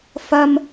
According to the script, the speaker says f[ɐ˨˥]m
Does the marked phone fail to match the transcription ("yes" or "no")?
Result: yes